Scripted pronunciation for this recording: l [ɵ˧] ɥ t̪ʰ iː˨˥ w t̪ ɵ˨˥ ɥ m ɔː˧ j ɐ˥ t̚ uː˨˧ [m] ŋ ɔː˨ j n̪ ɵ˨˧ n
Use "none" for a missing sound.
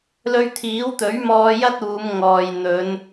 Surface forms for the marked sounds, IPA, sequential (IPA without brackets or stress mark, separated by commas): ɵ˧, m